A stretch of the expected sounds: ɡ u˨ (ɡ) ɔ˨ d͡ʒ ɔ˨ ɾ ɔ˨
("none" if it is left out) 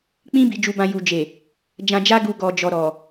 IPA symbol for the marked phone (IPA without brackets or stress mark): ɡ